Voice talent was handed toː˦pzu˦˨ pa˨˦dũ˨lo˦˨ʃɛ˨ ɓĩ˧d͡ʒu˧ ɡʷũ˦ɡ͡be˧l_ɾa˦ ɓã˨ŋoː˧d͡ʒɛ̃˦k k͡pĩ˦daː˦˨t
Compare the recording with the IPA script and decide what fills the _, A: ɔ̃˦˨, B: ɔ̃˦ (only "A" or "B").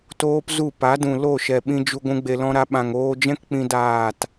B